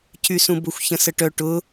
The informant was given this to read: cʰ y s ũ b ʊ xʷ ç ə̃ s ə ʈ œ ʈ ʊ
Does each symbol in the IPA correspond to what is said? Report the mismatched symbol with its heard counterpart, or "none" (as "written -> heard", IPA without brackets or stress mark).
none